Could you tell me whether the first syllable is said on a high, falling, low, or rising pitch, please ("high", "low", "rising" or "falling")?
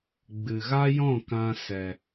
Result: low